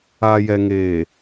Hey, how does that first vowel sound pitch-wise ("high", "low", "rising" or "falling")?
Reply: low